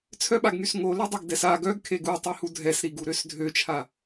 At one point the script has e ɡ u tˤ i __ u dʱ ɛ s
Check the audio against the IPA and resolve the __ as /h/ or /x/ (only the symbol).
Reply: h